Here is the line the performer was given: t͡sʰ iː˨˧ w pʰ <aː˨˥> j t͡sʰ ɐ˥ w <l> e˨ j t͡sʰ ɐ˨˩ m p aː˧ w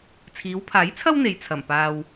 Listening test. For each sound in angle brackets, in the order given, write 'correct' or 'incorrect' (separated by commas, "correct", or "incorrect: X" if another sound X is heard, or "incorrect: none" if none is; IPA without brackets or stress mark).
correct, incorrect: n̪